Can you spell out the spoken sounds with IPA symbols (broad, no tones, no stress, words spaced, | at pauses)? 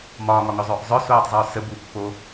mɒːŋɒŋœzˤœːʔ zˤœsoːtˤzˤœː sə bupːoː